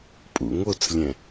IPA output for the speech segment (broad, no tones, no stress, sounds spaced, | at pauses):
pʼ ṵ ŋ o t͡s lʲ ɛ̃